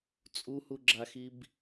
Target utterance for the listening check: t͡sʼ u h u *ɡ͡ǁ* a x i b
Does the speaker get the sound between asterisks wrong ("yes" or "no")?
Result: no